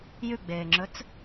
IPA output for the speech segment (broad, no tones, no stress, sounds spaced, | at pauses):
j ʉ ɡ͡b eː ŋ͡ǁ ɵ t͡s